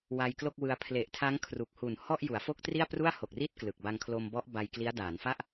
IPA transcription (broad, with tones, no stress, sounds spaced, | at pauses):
w a˧ j k l o˥˩ k̚ w ɯ˧ a̯ pʰ l e˨˩ ʔ tʰ a˦˥ ŋ kʰ r u˨˩ k̚ h u˨˩ n h ɔ˥˩ ʔ j u˩˦ a̯ f o˥˩ k̚ t r i˥˩ a̯ p r u˥˩ a̯ h o˨˩ k̚ r i˥˩ t̚ k l ɯ˨˩ k̚ b a˧ ŋ kʰ l o˧ m b ɔ˦˥ ʔ b a˧ j k l i˦˥ a̯ d aː˩˦ n f a˥˩ ʔ